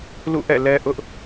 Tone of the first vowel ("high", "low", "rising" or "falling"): falling